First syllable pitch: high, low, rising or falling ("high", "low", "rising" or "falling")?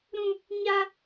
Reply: high